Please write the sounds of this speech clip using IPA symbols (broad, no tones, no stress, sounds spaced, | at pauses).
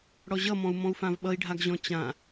ɽ ɔ ʑ ʌ m ɔ̃ u̯ m ɔ̃ u̯ f ã v ɓ ʌ i̯ ɖʱ a ɡ ʑ ɔ̃ t͡ɕ ã